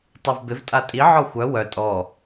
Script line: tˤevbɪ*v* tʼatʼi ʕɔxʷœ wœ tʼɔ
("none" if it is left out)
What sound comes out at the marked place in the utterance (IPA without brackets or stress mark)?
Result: v